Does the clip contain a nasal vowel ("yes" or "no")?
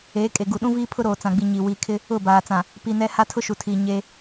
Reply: yes